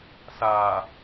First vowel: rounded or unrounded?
unrounded